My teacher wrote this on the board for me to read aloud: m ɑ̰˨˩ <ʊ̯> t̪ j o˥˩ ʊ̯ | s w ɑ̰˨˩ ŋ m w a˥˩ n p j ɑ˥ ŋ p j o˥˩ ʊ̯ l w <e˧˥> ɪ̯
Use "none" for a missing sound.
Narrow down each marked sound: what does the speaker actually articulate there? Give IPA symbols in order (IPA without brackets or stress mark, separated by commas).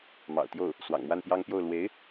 ʊ̯, e˧˥